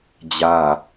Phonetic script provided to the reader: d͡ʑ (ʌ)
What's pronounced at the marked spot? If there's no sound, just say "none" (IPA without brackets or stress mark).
a